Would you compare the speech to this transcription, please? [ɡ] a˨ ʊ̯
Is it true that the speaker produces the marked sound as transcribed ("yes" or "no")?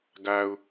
yes